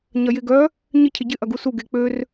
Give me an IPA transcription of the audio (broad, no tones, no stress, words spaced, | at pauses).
ɲɐjɪ ɡœ | ɲɪ cʰɪɟɪ ʔɐɡusu ɡek͡pør